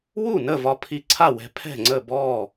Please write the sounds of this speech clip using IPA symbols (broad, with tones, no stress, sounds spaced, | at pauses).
w u˥˩ n ə˥˩ v ɒ˧ pʰ i˧ ǀʰ a˥˩ w ɛ̤˧ pʰ ɛ̤˥˩ ŋ͡ǀ ə˥˩ b ɔ˥˩